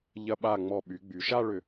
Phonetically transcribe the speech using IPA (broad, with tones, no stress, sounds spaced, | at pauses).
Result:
ʎ ɐ˧ ɓ a˧˩ ŋ͡m ɔ˧˩ ɓ y˩˧ ɡ͡b y˩˧ ʃ a˥˧ ɭ ʏ˧˩